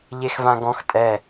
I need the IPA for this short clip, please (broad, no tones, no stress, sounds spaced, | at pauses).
ʎ e x v ã ɡ ɔ̃ x tʼ ɛ